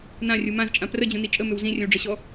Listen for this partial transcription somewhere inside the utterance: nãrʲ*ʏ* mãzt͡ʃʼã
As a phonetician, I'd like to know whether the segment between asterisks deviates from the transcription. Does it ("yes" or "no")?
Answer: yes